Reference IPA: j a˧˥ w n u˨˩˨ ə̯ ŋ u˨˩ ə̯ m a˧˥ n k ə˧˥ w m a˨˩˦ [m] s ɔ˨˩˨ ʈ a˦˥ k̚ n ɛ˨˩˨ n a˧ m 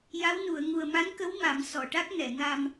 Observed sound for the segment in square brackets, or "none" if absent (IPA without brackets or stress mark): m